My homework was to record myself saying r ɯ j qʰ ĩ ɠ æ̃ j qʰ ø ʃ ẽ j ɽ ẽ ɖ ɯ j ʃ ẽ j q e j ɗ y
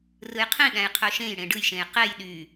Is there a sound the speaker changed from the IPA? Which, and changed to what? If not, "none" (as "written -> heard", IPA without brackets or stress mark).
none